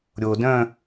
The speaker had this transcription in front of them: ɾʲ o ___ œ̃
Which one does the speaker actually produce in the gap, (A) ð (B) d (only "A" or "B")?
B